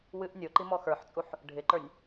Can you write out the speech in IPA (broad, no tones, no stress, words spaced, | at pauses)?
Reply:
wɨʔ nʲo ǃimɔxə˞ħt͡sʼuħ | ɖʱɪǃə˞nʲ